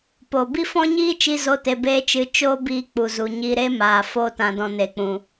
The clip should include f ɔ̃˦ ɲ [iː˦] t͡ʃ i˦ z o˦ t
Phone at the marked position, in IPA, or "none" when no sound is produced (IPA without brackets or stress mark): iː˦